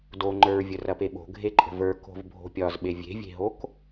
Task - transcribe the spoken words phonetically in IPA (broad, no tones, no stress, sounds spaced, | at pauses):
d o ŋ͡ǃ ə˞ ɹ vʲ ə r ɐ p e ɓ o̤ ɡʱ e ǃʼ ə̤ v ə˞ k o̤ v bʱ o̤ pʲ ɒ z ɓ e vʲ e̤ vʲ e̤ ɦ o k